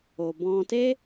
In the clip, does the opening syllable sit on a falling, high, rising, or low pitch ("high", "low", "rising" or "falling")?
low